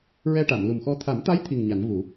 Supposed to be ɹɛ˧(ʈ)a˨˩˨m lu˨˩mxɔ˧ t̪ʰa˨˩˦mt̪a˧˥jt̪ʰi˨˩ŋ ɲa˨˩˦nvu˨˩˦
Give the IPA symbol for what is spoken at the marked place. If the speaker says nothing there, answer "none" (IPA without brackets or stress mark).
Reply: ʈ